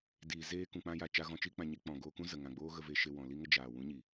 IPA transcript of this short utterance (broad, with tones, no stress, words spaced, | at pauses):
diː˨ zeː˧kũ˨k͡pã˧ja˨ t͡ʃa˧ɣɔ̃˧t͡ʃi˦ k͡pã˧ɲe˦ k͡pɔ̃˨ɡoː˧kũ˦ zə˨ŋã˨ɡ͡boː˦ ɣə˧ve˧ʃe˧ wɔ̃˨li˦ŋə˦ d͡ʒaː˨ wũ˨˦ɲi˨